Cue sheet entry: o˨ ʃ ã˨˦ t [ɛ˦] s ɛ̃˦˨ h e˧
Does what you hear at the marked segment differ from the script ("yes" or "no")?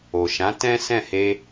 yes